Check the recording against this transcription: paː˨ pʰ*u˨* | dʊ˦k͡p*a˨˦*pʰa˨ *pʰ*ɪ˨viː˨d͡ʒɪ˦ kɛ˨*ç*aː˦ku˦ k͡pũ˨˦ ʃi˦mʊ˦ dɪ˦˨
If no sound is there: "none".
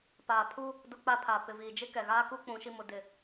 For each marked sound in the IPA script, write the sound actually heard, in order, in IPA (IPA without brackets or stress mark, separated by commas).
u˦, a˦, p, ɣ